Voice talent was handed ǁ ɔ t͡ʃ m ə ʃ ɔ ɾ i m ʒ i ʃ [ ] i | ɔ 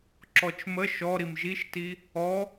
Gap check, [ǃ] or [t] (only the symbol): t